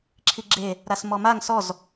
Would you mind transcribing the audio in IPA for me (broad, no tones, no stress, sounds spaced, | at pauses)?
ǁʰ i ɡ͡ǁ e | ɾ a s m ɔ m a ŋ s ɔ z